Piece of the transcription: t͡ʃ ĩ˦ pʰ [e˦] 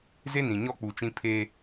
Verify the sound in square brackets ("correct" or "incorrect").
correct